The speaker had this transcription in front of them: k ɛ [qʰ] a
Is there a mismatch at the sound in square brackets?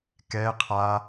no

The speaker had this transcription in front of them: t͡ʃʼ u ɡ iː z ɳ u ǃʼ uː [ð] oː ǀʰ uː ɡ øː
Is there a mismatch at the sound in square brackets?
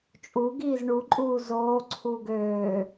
yes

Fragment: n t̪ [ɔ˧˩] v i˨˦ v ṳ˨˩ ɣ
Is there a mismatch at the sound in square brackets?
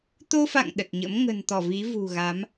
no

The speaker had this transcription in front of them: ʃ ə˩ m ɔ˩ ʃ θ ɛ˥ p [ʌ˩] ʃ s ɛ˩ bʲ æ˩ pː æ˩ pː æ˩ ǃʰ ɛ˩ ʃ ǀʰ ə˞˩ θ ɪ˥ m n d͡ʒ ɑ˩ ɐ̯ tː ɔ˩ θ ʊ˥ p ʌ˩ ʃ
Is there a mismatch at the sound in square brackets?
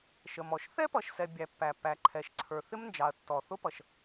no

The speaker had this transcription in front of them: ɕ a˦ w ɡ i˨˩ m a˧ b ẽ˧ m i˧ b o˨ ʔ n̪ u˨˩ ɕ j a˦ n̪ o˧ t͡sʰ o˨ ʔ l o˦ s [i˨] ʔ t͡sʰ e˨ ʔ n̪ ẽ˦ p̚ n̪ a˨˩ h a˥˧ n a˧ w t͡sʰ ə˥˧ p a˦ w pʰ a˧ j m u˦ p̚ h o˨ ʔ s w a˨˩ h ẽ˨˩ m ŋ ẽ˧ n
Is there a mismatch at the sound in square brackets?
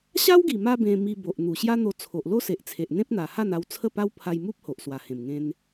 yes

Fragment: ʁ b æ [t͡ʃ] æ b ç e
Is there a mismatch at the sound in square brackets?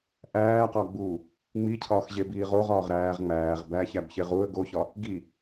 yes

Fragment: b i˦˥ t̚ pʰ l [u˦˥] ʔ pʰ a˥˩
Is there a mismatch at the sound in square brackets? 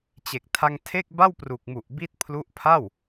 no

